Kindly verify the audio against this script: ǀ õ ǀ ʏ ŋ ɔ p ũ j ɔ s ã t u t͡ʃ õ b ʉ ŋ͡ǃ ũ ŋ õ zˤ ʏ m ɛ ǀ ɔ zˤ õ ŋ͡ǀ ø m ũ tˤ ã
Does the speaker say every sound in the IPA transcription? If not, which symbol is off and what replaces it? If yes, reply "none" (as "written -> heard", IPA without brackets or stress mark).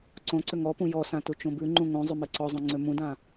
tˤ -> d